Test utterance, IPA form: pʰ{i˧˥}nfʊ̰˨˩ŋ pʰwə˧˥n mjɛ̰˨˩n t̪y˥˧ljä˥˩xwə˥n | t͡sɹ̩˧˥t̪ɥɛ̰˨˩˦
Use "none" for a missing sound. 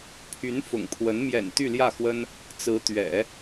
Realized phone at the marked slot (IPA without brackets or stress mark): y˧˥